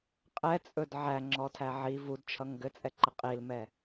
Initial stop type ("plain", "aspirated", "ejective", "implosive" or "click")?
ejective